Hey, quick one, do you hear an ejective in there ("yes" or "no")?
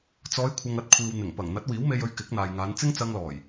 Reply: no